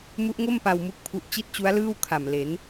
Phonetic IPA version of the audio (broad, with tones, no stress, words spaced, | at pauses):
mu˦˥ʔŋo˥˩mpa˧w mu˥˩k̚pʰu˦˥ʔ t͡ɕi˥˩t̚t͡ɕu˦˥a̯lɯː˥˩w kʰa˨˩mle˩˦n